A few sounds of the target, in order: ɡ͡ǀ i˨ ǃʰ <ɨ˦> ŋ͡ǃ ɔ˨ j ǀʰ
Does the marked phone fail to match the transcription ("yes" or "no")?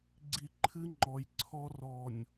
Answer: no